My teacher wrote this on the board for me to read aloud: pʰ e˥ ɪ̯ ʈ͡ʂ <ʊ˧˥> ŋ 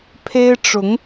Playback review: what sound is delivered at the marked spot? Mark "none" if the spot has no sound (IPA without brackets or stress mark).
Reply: ʊ˧˥